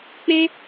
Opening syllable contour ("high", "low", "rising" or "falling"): high